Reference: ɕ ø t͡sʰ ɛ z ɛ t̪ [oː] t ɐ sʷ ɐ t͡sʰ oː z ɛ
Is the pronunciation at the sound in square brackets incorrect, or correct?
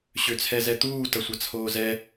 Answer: incorrect